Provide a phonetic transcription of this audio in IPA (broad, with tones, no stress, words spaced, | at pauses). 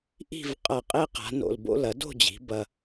ʔi̤˥˧v qʼɐ˧˩qʼe˥ qa̤˩˧no̰˧˩lbo̰˥ lɐ˩˧do̤˥˧d͡ʑi̤˩˧ bɐ˧